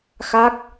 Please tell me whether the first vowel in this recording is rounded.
no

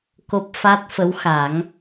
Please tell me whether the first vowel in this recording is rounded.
yes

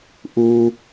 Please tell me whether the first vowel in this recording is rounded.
yes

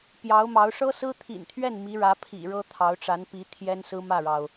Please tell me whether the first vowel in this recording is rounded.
no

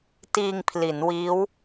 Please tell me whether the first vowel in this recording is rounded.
no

